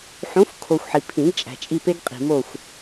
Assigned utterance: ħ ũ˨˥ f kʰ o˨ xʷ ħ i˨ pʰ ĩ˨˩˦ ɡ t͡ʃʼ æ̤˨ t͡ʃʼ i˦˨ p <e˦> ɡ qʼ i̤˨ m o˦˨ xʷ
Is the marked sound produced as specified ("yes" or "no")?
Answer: yes